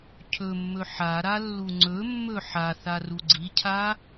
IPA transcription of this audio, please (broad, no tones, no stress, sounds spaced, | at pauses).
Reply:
cʰ ɵ mː ɵ ħ a ɾ a lː u ŋ͡ǀ ɵ mː ɵ ħ a θ a r u ɡ͡ǀ i cʰ a